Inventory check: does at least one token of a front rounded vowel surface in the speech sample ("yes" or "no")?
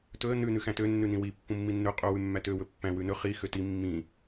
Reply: yes